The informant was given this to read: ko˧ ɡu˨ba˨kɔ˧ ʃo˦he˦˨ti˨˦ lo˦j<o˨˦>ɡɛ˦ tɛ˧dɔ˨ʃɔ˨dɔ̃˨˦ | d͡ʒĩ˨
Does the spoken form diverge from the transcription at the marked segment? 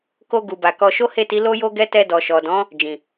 yes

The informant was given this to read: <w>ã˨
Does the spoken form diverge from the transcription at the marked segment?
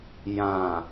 yes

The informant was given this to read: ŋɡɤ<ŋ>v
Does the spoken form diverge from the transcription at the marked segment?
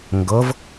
yes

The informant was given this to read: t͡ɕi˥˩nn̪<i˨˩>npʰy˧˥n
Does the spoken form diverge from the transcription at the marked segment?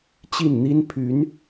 yes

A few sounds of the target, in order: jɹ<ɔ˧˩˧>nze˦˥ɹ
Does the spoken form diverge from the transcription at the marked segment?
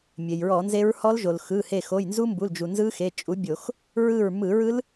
no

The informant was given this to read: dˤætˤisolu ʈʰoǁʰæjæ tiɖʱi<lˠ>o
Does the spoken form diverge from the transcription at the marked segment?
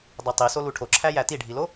yes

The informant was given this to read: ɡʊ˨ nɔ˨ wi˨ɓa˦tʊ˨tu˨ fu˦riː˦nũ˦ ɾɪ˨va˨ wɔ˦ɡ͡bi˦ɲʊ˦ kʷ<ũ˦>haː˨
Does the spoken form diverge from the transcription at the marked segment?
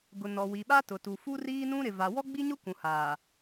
yes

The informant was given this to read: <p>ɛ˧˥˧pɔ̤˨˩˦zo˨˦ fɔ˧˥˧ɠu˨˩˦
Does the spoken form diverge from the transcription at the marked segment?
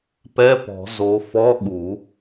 no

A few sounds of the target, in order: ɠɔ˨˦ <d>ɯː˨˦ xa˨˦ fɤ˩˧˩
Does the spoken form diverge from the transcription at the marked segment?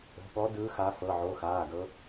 no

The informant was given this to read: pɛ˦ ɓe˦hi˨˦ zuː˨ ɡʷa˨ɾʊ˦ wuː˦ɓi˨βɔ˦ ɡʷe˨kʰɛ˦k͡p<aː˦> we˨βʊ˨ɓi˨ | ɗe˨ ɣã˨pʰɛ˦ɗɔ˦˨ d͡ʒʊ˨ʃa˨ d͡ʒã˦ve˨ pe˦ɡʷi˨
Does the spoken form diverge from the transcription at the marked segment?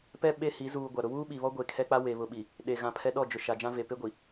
yes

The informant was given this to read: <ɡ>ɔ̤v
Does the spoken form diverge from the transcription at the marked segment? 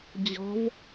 yes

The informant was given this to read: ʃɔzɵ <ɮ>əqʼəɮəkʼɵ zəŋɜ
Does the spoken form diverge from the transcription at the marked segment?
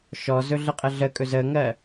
no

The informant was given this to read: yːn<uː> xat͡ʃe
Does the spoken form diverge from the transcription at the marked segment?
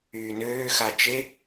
yes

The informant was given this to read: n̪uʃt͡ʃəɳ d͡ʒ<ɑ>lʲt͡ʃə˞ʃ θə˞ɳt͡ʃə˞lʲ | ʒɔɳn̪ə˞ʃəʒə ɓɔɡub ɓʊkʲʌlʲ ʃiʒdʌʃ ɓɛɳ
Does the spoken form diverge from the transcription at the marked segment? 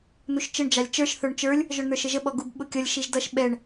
no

